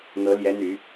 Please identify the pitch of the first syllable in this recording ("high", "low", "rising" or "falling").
rising